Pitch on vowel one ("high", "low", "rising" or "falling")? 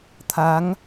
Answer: rising